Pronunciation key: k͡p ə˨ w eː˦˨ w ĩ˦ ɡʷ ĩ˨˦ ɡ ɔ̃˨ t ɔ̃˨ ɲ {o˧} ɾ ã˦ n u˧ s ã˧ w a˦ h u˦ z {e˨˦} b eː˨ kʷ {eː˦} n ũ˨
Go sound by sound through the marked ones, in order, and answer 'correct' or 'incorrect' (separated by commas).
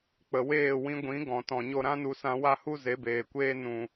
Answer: correct, correct, correct